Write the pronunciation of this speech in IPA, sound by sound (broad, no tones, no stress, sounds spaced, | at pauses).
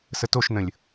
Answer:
s ə t o ʃ n ə̃ lʲ